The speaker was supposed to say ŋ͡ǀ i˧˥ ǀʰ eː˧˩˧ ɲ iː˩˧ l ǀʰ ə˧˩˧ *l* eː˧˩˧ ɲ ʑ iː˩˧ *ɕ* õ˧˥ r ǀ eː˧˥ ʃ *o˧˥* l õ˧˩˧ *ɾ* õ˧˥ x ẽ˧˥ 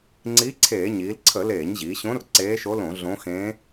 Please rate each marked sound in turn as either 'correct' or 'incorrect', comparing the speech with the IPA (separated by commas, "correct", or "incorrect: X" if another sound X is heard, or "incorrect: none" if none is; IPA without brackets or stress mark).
correct, correct, correct, incorrect: ɮ